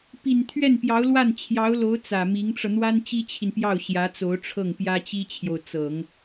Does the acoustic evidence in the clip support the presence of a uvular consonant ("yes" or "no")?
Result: no